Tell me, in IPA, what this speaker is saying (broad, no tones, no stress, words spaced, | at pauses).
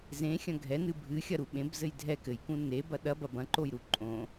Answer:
zẽxʲɐ̃ ɡʱɛnɨ bʱɨxʲɐɾu ɓẽbzɘj dʱɛ kɘjkũ nebɐ ɗɐbɐ bɐ̃ǃojɾu ǃʼõ